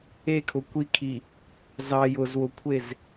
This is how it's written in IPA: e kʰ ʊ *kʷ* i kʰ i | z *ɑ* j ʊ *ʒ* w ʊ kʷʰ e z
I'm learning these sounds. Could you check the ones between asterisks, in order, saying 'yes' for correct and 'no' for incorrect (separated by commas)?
yes, yes, no